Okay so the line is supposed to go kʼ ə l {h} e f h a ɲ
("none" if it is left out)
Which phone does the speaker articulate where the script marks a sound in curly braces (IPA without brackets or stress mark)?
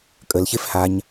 ç